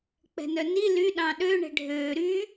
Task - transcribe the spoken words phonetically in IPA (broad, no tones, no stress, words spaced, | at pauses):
k͡pɛ̤nœni ly ɗɑ̃ɗø ɳɛ̤ɖʱøː ɾy